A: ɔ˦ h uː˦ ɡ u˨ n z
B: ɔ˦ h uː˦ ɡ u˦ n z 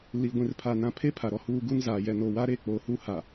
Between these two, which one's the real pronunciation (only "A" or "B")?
B